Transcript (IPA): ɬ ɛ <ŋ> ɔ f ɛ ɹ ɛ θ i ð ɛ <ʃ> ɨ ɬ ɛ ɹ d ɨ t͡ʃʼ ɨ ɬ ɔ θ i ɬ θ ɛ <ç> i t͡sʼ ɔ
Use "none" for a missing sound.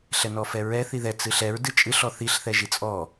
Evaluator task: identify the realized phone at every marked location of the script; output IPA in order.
n, t͡s, ʒ

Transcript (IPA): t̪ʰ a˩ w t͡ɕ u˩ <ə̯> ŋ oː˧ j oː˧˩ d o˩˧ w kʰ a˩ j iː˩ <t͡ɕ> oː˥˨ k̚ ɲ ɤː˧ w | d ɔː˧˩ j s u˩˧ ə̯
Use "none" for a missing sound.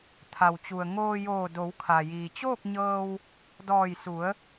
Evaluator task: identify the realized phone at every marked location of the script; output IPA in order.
ə̯, t͡ɕ

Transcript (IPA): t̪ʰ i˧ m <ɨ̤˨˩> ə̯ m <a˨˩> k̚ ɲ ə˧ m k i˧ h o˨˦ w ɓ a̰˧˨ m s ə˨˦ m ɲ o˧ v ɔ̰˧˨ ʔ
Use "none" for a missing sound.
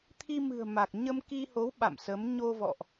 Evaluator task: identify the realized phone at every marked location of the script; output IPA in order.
ɨ̤˨˩, a˨˩

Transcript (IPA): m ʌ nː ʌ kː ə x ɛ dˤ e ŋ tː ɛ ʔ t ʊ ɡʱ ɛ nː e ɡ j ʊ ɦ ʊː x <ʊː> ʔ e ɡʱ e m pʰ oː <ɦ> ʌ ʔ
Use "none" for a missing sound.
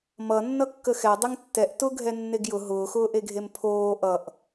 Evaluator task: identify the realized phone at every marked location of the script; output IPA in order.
ʊː, ʔ

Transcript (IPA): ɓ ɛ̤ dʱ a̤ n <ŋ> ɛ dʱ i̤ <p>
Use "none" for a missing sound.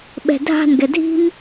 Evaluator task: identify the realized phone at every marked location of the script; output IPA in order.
ɡ, m

